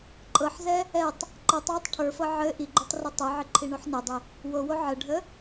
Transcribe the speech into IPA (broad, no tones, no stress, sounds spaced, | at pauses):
ǃʼ ɤ ħ z ɛ | ɛ tˤ | ǃ ɤ tˤ w ɪ tˤ ʈʰ ə˞ f ɤ ʕ ɘ ʔ i ɡ͡ǃ o tˤ r o tˤ ɛ ʕ ɘ ǃʰ i ɳ o ħ n ɛ dˤ ɪ | w o w o ʕ ə ɖʱ ə